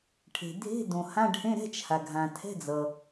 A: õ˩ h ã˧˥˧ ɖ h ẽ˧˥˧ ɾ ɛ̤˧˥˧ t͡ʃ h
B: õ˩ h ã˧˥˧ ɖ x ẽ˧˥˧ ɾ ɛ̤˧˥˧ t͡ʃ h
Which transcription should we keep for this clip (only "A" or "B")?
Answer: A